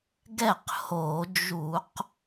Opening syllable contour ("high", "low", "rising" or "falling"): falling